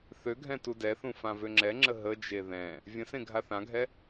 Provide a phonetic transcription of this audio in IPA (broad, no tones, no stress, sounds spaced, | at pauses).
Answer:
θ ø ɡʱ ɛ̃ t u d ɛ θ ũ f ã v ø ŋ͡ǁ ɛ ŋ͡ǁ ə ɦ ə d͡ʒ e ð ɛ̃ | vʲ ə̃ s ẽ ɡʱ a θ ã ɡʱ ɛ